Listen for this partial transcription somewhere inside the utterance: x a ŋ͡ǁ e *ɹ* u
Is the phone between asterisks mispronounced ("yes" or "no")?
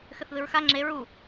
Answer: no